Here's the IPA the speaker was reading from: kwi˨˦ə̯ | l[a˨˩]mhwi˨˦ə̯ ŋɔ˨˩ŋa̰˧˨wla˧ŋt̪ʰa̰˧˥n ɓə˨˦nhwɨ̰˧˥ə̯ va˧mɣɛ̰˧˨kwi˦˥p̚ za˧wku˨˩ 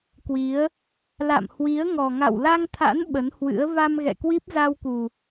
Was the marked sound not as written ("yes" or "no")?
yes